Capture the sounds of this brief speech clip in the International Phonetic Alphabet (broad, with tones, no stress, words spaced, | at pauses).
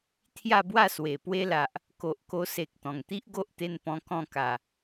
t̪ʰja˥˧bwa˥˧ swe˨˩pwe˦la˨ʔ | ko˨ʔko˧se˨k̚ t̪ɔ̃˨˩ŋt̪i˦ʔ ɡo˦ʔt̪e˧n pɔ̃˧ kɔ̃˥˧ka˨˩